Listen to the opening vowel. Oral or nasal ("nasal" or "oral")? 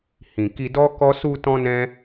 nasal